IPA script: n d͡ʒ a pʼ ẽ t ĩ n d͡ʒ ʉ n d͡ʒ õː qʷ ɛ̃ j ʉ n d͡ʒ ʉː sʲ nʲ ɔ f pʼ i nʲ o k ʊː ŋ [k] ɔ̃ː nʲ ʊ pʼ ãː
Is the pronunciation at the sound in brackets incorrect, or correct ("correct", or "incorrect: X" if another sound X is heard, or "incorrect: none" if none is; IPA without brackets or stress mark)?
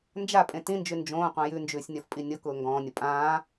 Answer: incorrect: ɡ